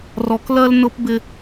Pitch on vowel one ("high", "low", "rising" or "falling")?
low